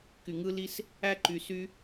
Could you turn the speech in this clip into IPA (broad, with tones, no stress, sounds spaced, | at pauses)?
k y˨ ŋ ɯ˦ l i˦ s | æ˦ ǃ y˨ s y˦